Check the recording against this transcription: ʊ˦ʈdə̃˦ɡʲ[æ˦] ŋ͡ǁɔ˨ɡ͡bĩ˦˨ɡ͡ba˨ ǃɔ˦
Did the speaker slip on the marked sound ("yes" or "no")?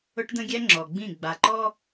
no